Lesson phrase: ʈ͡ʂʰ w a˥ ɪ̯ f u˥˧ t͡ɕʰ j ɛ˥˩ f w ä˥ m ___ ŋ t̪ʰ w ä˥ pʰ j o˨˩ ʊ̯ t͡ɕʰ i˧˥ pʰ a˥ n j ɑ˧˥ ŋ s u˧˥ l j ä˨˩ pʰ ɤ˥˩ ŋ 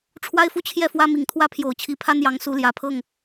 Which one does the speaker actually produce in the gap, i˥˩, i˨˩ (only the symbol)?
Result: i˨˩